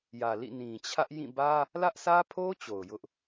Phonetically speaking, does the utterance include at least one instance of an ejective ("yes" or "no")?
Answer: no